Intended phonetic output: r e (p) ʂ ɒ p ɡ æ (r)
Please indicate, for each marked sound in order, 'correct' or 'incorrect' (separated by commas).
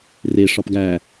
incorrect, incorrect